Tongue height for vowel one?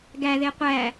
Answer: low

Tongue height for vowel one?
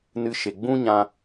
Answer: high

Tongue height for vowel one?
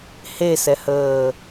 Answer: mid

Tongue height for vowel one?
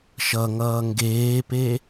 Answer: mid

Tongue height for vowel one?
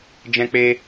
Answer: mid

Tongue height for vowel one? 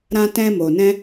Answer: low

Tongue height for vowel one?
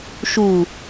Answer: high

